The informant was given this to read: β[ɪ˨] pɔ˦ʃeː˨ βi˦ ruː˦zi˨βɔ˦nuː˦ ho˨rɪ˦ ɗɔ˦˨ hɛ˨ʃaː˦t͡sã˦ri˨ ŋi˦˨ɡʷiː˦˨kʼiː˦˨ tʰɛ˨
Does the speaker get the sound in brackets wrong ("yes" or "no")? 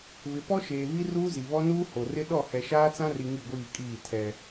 no